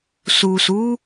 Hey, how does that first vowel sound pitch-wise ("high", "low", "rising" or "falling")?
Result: low